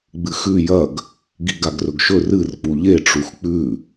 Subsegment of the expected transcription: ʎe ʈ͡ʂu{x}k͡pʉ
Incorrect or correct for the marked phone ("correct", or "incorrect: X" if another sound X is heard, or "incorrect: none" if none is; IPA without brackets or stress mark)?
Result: correct